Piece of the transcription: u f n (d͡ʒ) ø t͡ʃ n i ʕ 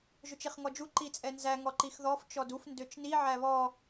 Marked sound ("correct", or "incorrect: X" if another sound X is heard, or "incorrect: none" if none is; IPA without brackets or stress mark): incorrect: d